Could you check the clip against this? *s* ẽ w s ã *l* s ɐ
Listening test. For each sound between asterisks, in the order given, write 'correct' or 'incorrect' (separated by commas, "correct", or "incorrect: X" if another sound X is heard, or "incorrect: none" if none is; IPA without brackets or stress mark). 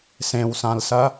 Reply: correct, correct